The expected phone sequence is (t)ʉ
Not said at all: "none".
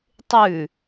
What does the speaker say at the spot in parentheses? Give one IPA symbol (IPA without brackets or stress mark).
tˤ